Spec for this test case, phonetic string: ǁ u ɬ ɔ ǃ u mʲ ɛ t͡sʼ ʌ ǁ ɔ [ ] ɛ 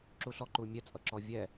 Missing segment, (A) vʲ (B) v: A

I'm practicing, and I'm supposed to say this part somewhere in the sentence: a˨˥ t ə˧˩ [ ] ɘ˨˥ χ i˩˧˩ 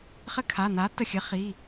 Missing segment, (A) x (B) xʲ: B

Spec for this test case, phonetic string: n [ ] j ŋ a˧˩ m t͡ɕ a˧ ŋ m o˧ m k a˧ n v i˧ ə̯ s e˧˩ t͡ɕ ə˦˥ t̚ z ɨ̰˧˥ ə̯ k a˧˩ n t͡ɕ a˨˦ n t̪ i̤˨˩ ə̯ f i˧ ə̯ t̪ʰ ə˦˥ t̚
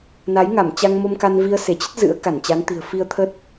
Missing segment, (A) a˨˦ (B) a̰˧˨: A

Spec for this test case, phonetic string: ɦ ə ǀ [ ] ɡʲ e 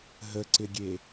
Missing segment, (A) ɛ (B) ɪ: B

